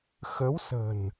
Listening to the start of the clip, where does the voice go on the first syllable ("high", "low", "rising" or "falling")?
rising